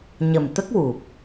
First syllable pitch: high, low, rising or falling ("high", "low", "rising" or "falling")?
low